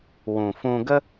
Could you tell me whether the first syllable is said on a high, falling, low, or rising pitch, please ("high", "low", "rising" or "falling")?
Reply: low